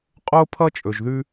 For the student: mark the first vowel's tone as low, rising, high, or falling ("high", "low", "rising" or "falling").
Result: high